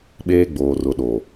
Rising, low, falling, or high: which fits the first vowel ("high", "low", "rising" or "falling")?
high